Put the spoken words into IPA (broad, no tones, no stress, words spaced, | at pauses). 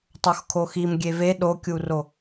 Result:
tˤoxkʰoxim ɡʲeve ɗokʲuro